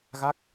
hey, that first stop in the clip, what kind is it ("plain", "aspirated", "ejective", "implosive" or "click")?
plain